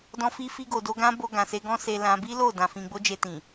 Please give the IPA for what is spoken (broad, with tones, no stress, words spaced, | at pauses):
dɔ̃˧fi˧fi˧ɡo˨ do˧ɡã˦ bo˧ɡã˨se˧ ɡɔ̃˦se˧ lã˧ bi˦lo˦˨dã˨ fĩ˧ ɡ͡bo˦d͡ʒe˧tĩ˨